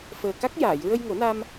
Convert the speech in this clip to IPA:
fəː˨˩ka˦˥k̚jaː˨˩˨j ɹə˧jŋo˨˩˦na˧m

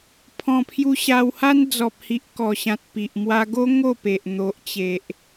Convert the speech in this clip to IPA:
pʰɔ̃˨˩pʰju˧ ɕa˧wha˦n d͡zɔ˨p̚hi˨ʔ kɔ˨˩ɕã˨t̚ pi˨ʔ mwa˧ɡo˦ ŋo˥˧ pe˨ʔn̪o˨ʔt͡ɕe˨ʔ

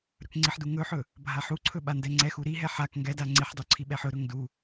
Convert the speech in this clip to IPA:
ɾɵkŋ͡ǀiħdu ŋɵħɵ | bʱaħuǀʰɵ ɓandɛŋ͡ǀɛxu ɾiɦɛ ħak ŋɡɛda ŋ͡ǀiħdˤu ǀʰiɓɛħɵɾɵŋ du

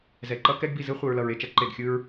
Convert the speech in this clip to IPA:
zɛ˨ǃʌ˦ kɛ˦ɡbi˨zɯ˦ χʷɯ˨ɹlʌ˨ɹ e˨t͡ʃʌ˦ ǃe˨ɡxʲɯ˦ɹ

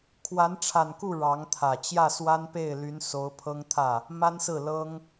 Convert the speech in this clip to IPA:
kʰwa˧˥nʈ͡ʂʰa˨˩nku˥˩ ɻɑ˧˥ŋt̪ʰä˨˩ t͡ɕjä˥˩swa˥npe˥˩ɪ̯ly˧˥n so˧˥ʊ̯pʰɤ˥ŋt̪ʰä˥˩ | ma˥nsɹ̩˥˩ lɤ˥ŋ

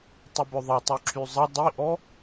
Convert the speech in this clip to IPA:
tˤubœðˤɛ tˤyǁʰyzˤɛ dˤiʔɔ

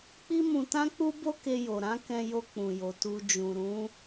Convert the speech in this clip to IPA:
k͡pi˦mũ˧tã˦k͡pu˦ bo˦ke˧jo˨ɾã˨˦ kɛ̃˧jo˧k͡pũ˨jo˨ tu˧ d͡ʒũ˨ɾũ˨˦

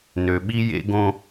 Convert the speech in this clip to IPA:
nø˨ɓi˦jḛ˦ɡõ˦

